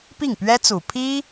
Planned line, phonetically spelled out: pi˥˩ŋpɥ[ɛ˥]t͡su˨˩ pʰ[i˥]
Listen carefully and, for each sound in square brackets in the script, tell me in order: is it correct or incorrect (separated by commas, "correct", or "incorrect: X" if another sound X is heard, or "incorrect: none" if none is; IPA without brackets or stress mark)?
correct, correct